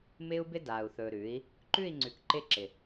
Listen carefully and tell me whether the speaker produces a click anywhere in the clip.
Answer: yes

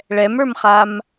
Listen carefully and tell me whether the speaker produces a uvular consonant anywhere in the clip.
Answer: yes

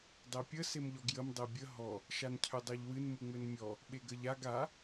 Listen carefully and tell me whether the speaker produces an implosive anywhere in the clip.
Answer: yes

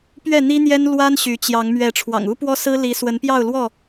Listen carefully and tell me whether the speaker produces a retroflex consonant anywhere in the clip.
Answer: yes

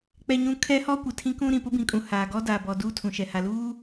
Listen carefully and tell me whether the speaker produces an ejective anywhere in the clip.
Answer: yes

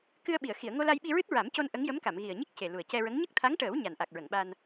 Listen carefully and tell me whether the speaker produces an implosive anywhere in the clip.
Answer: yes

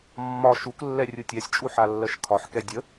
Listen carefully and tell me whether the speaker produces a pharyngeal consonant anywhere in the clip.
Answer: yes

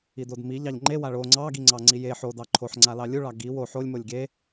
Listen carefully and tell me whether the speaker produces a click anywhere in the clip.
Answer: yes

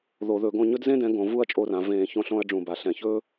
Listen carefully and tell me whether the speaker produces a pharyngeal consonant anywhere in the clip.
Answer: no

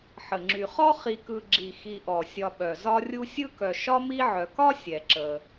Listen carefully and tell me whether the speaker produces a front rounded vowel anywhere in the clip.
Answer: yes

